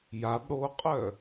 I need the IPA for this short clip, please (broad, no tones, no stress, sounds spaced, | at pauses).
j a b ɽ o qʼ œ